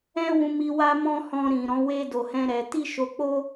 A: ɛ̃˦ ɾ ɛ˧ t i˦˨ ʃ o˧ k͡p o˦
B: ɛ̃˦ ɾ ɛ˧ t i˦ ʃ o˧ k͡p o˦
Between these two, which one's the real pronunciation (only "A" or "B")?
B